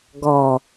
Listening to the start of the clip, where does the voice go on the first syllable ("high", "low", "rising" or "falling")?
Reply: low